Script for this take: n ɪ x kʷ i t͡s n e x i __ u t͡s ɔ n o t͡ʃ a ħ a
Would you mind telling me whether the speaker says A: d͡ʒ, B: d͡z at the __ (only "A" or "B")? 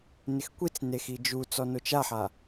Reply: A